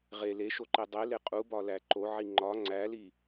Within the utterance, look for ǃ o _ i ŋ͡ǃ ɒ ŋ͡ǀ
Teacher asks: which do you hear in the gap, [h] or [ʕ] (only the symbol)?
ʕ